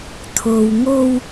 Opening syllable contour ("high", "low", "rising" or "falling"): low